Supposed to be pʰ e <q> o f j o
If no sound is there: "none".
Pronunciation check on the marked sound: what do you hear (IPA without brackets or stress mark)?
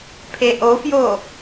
ʔ